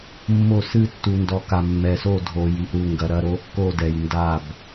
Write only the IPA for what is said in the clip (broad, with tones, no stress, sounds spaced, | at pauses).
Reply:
mː o˦˨ s ɨ˦˨ tː u˨ n d ɔ˨ k a˨ mː ɛ˨ s o˦˨ dʱ o˨ j i˨ ʔ ɾ u˨ ŋ ɡ ɐ˨ ɾ ɐ˦˨ ɾ o˦˨ kː o˦˨ d ɛ˨ j n d a˦˨ b